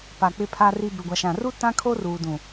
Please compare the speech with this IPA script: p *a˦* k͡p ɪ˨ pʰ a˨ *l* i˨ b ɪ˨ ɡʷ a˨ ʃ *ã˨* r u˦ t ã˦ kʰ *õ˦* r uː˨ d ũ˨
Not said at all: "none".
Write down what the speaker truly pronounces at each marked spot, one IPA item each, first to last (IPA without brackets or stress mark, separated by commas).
a˨, r, ã˨, o˦